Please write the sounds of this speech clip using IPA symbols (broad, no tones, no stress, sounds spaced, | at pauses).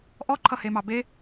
ʔ ɔ ǃʰ ʌ h e m ɑ b e